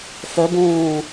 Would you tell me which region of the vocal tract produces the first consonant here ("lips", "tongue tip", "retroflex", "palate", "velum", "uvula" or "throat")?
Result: lips